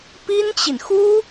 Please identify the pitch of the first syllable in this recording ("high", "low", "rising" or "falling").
high